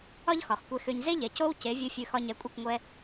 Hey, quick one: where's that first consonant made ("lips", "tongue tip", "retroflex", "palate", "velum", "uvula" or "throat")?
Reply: palate